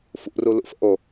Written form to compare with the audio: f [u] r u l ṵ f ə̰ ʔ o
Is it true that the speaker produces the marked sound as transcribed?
no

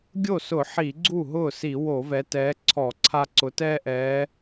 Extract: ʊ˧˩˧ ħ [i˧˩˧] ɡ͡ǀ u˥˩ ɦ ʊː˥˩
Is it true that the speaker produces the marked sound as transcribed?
yes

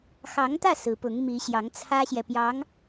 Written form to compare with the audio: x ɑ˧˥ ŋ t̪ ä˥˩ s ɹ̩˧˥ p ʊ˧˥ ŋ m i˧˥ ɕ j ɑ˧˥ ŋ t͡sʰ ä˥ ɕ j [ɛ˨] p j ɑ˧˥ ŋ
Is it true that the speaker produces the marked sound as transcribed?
yes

